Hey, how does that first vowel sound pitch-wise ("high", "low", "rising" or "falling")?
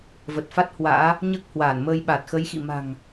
low